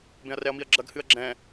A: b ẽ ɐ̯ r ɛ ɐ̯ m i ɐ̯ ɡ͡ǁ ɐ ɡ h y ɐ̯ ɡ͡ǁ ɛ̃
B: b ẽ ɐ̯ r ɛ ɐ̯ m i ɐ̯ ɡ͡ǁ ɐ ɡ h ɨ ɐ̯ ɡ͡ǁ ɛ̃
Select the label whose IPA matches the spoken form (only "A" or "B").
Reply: B